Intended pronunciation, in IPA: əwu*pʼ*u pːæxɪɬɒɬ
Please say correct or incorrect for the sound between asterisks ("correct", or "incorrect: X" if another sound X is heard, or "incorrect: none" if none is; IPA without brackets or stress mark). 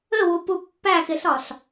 incorrect: p